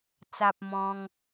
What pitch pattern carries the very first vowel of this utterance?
high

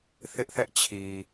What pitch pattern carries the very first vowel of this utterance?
high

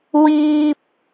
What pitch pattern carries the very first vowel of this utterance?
high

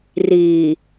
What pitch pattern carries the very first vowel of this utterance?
low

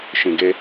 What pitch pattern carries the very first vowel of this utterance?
low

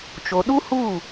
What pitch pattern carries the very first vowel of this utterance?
low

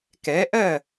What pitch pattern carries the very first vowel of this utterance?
rising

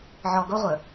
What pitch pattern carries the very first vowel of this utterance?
low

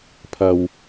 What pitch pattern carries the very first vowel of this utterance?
low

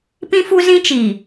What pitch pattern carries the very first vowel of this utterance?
high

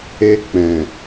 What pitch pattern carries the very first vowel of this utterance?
high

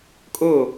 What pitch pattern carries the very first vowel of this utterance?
falling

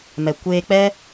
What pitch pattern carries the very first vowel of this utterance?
low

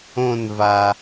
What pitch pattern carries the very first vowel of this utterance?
falling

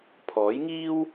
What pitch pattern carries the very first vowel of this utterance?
rising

